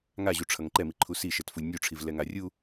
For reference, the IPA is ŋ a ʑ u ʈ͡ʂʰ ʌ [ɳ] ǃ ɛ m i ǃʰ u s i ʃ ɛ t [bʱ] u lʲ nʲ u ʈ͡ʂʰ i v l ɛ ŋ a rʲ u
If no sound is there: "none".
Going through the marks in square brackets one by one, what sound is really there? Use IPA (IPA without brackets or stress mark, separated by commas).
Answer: ŋ, f